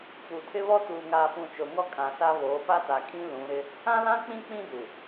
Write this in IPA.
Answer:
p u˨ tʰ ɪ˦ β ɔ˦ t uː˨ ŋ aː˨ p ũ˨ t͡ʃ o˨ ŋ ɔ˦ kʼ ã˨ s a˦ β oː˨˦ p a˦ t a˨ kʼ ĩ˦ l ũ˨˦ ɾ ɪ˦ | ã˦ l ã˦ k͡p ĩ˦ k͡p ĩ˦ d u˨

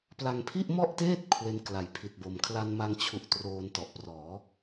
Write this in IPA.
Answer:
p l a˧ ŋ pʰ i˥˩ ʔ m ɔ˥˩ ʔ t eː˥˩ t̚ kʰ w e˦˥ n k l a˨˩ j pʰ i˨˩ t̚ b o˨˩ m kʰ l a˧ n m a˧ ŋ t͡ɕʰ u˨˩ ʔ t r oː˧ n t ɔ˨˩ ʔ p r ɔː˩˦

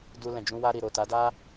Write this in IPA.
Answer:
d u˧ l ɛ̃˨ d͡ʒ ũ˧ w a˧ ɾ i˨ ɾ o˨ t a˨˦ d a˦

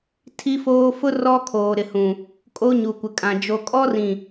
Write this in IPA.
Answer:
tʰ i˦ f oː˦ f ʊ˦ r ɔ˦ kʰ oː˨ ɾ ɪ˨ h ũ˨ | kʼ o˦ ɲ u˨ kʷ ɪ˨ kʼ ã˨ d͡ʒ o˨ kʼ ɔ˦ r ĩ˨

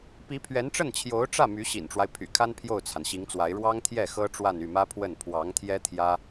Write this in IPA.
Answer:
p i˧˥ pʰ ɥ ɛ˧˥ n ʈ͡ʂ ə˥˩ n t͡ɕʰ j o˧˥ ʊ̯ ʈ͡ʂ ä˥˩ m y˧˥ ɕ ḭ˨˩ n ʈ͡ʂ w a˦ ɪ̯ pʰ y̰˨˩ kʰ a˥ n pʰ j o˥˩ ʊ̯ t͡sʰ a˩ n ɕ i˧˥ ŋ t͡s w a˧˥ ɪ̯ ɻ w ɑ˥ ŋ t̪ʰ j ɛ˥˩ x ɤ˥ ʈ͡ʂ w a˥˧ n y˥˩ m ä˥ pʰ w ə˥˩ n pʰ w ɑ˧˥ ŋ t̪ʰ j ɛ˥ t̪ʰ j ä˥

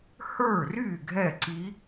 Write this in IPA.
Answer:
h ə˞˥˩ r y˥˩ ɡʱ ɛ˥˩ ǀ i˧˥

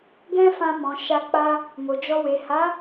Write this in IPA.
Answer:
ɡ ɛ̃˦ f ã˧ m ɔ̃˨ ʃ a˧ k͡p a˦ | m o˨ d͡ʒ ɔ˧ w e˨ h a˨˦

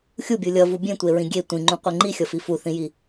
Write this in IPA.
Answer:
xʲ u bʲ u lʲ ʌ v u bʲ ẽ tʷ e ɹ ĩ ɡʲ e tʷ ĩ ŋ͡ǃ ũ qʷ e ŋ͡ǃ i xʲ ʌ f i f u θ ĩ j i

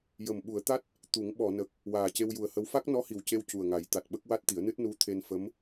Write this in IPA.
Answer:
j ə˨˩ m ɓ u˨˩˦ ə̯ t̪ a˦˥ t̚ | t̪ u˨˩˦ ŋ ɓ ɔ˨˩˨ n ə˨˩ k̚ | w aː˨˩ c e˧ w j u˨˩ ə̯ h ə˧˥ w f a˦˥ k̚ n ɔ˧˥ h i˨˩ w c e˧ w c u˨˩ ə̯ ŋ a˨˩˦ j t̪ a˨˩ t̚ ɓ ə˦˥ k̚ w a˦˥ t̚ t̪ i˨˩˦ ə̯ n ɨ˦˥ t̚ n u˧˥ t̪ʰ e˧ n f ə˧˥ m

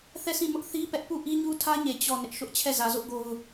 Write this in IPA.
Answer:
θ ɛ˦˨ s ĩ˦˨ m ʊ˦ ʔ θ i˦ p ɛ˦ ʔ p u˦˨ ʔ i˦ ɲ u˦ tʰ ä˦ ɲ e˦˨ t͡ɕ ɔ˦˨ n ɪ˦ ʔ ʃ ʊ˦ ʔ t͡ɕʰ ɛ˦˨ z ä˨ z ʊ˦ ʔ ɡ o˦ ʊ̯

